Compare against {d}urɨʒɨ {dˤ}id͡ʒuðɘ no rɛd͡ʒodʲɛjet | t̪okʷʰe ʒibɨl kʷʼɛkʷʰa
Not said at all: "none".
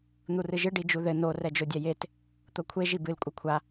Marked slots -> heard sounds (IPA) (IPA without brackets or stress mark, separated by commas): n̪, ɖ